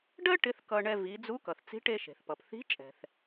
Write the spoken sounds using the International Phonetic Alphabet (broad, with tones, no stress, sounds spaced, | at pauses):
ɖ ɜ˥ ʈ ɪ˧˥ θ k ʌ˧ ɳ ɛ˧ v i˩˧ d͡z u˧˥ k ʌ˩ θ t͡s i̤˧˥ ʈ e˧ ʃ e̤˩ θ p ʌ˩ p θ i̤˧˥ t͡ʃʼ ɛ̤˩ θ